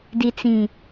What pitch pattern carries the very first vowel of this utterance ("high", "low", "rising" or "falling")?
low